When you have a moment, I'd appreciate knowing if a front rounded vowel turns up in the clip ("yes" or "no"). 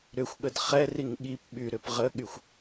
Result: yes